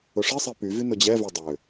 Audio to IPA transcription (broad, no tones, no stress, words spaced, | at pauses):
ʊʂi sˤipyvy nʊd͡ʑɛ vødˤø